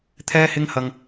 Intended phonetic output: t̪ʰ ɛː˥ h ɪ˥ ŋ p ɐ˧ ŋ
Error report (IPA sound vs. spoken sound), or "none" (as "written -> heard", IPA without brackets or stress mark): p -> h